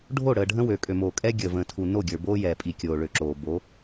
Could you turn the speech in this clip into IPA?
ɖʱ o˦˨ ɽ əː˨ ɖʱ ə̃˦ w ø˨ kʼ ø˨ m oː˨ kʼ ɛː˦ ɡʲ əː˨ v ə̃ː˨ tʰ u˨ n o˦˨ ɡʲ ə˞˨ b oː˦ j ɛː˨ pʼ i˨ kʲ oː˨ ɭ ø˨ ǁ oː˨ b o˨˦

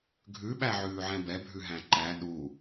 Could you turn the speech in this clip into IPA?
ɡʱ ʉ ɓ æ ʕ ʉː ʕ ɛ̃ b ɛ bʱ ʉ ɦ æ̃ ǃ æ ɗ u

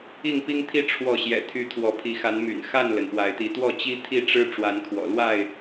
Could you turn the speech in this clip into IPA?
i˥˨ ŋ p i˦ ŋ t̪ʰ i˦ ʈ͡ʂʰ w ɔ˥˨ ɕ j ɛ̰˨˩ t̪ʰ y˨˦ t̪ʰ w ɔ˨˦ pʰ i˨˦ x a˨˦ n m y̰˨˩ n x a˥˨ n l ə˩ n p w a˨˦ ɪ̯ t̪ i˨˦ t̪ w ɔ˥˨ t͡ɕ i˦ t̪ʰ i˥˨ ʈ͡ʂ ɻ̩˦ ʈ͡ʂ w a˨˦ n kʰ w ɔ̰˨˩ l w a˥˨ ɪ̯

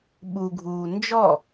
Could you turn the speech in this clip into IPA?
ɓ u ɡʱ uː n d͡ʒ ɔ

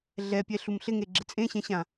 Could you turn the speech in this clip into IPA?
ɮ ɛ pʲ ɛ ɬ u m ɬ ɪ ŋ e ɡ͡ǁ ɪ t͡sʼ ẽ ɕ ɛ̃ ɕ ã

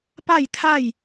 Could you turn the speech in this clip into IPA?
p a˥˨ j t̪ʰ a˥˨ j

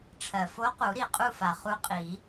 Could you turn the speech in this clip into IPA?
ʈ͡ʂʰ ɜ˩ f o˧˥ q u˨˩˦ ɾ i˩ qʼ u˥˨ f a˩ χ u˧˥ qʼ i˨˩˦

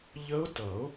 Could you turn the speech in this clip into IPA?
ʎ ə˦˥ ʊ̯ t ʌ˨˩˦ ʊ̯

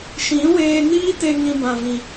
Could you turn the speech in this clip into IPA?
ʃ ĩ˨˦ w eː˧ n iː˦ t e˧ ŋ ĩ˧ b ã˨ v ĩ˨

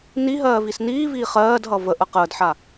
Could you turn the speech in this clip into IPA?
n i ɦ ɜː v i s n iː v iː χ ɜː d ɦ ʌ v ə ʔ ə q əː d ħ a

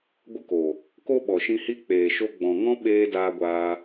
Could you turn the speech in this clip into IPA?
ɡʷ ɨ˧ k o˨ | k o˦ ɓ ɔ˨ ʃ ĩ˧ h i˦ k͡p eː˨ ʃ o˧ ɡ͡b ɔ̃˨ ŋ ɔ̃˦ ɓ eː˦ d aː˧ ɡʷ aː˧

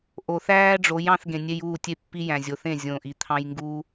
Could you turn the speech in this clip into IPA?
ʔ o˨ θ æː˦ ɖ͡ʐ o˨˦ j ɑ̃˧ θ ɡ ẽ˨ nʲ e˧ j uː˦˨ tʲ e˦ pː i˦ j æ̃˨ zʲ o˨ θ ẽ˦˨ zʲ õː˨ ʔ i˨ t̪ʰ ɑ̃˧ j ŋ ɡ uː˦

